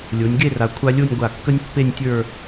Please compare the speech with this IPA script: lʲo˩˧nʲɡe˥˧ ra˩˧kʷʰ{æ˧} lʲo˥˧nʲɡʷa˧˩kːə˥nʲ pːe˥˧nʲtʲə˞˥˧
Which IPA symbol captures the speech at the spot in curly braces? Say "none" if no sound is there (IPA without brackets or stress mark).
a˧